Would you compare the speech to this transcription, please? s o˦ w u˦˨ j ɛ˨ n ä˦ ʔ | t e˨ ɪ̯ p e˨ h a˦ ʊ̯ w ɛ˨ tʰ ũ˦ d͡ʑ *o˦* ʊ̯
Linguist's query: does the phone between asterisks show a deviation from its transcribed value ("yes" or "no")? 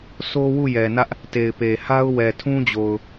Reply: yes